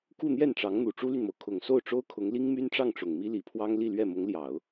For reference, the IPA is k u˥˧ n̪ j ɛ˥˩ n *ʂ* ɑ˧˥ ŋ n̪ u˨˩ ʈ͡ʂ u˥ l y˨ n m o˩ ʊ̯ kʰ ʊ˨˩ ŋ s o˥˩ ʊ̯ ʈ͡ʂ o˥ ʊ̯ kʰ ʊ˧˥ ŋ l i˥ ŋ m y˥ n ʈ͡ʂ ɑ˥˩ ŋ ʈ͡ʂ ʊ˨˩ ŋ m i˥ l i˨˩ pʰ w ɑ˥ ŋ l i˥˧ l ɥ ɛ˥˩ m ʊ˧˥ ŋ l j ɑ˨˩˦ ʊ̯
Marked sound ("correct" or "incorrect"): incorrect